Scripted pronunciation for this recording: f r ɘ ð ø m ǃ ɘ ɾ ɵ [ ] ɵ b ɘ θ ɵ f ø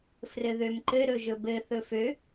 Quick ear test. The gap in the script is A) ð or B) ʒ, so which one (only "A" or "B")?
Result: B